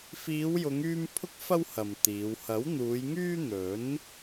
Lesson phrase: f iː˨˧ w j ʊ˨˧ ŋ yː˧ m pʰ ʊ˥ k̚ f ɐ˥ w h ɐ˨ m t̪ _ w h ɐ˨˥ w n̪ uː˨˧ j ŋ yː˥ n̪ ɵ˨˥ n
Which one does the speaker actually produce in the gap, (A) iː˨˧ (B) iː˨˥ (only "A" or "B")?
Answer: A